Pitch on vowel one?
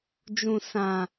low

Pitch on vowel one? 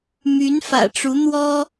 rising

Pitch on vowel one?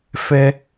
high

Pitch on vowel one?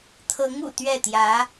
rising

